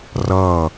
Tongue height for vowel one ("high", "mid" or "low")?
mid